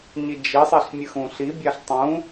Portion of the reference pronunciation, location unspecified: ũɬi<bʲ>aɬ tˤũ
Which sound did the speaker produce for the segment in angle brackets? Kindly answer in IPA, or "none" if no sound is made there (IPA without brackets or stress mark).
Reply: bʲ